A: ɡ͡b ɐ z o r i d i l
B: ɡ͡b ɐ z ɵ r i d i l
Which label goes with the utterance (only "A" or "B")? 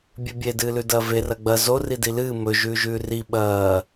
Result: A